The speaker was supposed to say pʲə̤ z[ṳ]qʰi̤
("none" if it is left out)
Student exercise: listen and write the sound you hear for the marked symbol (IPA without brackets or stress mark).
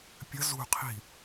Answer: ṳ